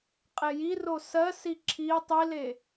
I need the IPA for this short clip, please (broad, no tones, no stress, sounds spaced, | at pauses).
qʼ e j i r o s ɜ s i ǁʰ i tˤ i l e